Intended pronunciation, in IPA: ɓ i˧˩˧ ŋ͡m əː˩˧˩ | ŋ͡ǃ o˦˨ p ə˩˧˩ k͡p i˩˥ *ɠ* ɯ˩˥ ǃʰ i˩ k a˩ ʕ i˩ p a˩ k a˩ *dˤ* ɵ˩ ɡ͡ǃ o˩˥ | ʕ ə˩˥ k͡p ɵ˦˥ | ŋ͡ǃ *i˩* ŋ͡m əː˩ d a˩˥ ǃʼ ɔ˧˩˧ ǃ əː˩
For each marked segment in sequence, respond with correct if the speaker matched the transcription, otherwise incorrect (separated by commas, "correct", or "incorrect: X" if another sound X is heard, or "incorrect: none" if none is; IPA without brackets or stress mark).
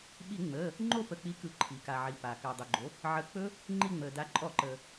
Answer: incorrect: k, correct, incorrect: i˦˨